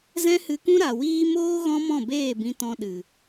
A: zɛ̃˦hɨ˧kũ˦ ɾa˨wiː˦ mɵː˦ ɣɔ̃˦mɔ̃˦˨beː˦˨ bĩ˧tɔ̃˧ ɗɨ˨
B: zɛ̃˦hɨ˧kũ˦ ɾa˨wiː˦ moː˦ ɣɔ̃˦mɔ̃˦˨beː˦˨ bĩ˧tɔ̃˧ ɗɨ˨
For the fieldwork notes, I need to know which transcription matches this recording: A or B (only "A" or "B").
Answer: B